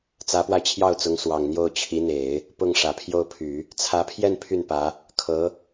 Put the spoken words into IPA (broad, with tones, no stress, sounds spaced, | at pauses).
t͡s ä˧˥ p w a˧ ɪ̯ t͡ɕʰ j ɑ˥˩ ʊ̯ t͡s ʊ˧˥ ŋ s w ɑ˨˩ ŋ n̪ j o˥˩ ʊ̯ t͡ɕʰ i˧˥ n̪ e˨˩˦ ɪ̯ | p ʊ˥˩ ŋ ʂ ä˨˩ pʰ j o˥˩ ʊ̯ pʰ y˨˩˦ | t͡sʰ ä˧˥ pʰ j ɛ˥˧ n pʰ y˥˩ n p ä˧˥ | kʰ ɤ˧˥